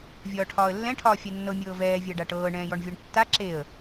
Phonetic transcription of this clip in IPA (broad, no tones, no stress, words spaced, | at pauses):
vʲɒːʈʰɒːə̯lːɛ̃ʈʰɒː fʲanːɤ mʲɤːvɛːvʲa ɖaʈɤː ɳɛ̃ːjɔɳvʲɒɳtːa ǁeə̯